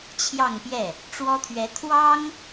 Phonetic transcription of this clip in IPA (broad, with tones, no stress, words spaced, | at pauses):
t͡ɕʰjɑ˥˧ŋpjɛ˥˩ | ʈ͡ʂwɔ˥t̪ʰɥɛ˧˥ t̪ʰwɑ˥ŋ